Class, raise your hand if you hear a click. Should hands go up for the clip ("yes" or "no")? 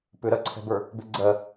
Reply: yes